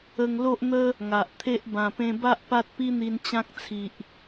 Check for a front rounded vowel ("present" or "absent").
absent